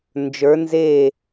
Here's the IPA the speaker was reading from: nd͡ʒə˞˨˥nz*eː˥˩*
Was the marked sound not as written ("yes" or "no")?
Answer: no